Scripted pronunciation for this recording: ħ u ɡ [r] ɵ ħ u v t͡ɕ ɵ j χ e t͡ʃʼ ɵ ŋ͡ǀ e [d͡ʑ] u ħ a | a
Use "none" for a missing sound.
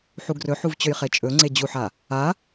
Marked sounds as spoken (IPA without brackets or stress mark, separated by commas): r, d͡ʑ